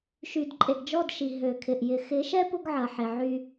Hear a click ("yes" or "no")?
yes